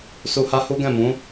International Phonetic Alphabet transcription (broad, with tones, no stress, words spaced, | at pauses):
su˧ha˦hu˦ ɡɛ̃˦˨mũ˨˦